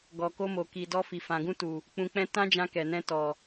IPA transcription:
ɡɔ˨ko˧mo˨ ki˨ dɔ˧fi˨ fã˨ɡũ˧tu˨ | k͡pũ˧k͡pɛ̃˦ tã˦d͡ʒã˧ kɛ˨nɛ̃˧ tɔ˨

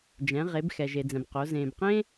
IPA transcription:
d͡ʒɛ̃˩˧ʁe˩˧b xɛ˩ʒe˩d͡zɛ̃˩b qo˩˧ zẽː˩bqẽː˥

